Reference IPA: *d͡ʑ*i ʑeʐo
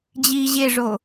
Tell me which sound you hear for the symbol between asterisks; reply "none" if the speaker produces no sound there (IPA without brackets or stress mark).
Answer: d͡ʑ